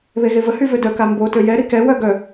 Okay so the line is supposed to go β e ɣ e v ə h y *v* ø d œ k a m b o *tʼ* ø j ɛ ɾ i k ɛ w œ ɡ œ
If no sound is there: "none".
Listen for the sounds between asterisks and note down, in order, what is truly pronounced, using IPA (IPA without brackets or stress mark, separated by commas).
v, t